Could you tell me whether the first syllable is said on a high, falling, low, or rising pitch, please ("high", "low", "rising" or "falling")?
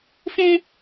high